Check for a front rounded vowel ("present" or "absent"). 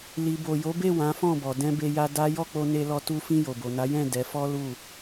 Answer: absent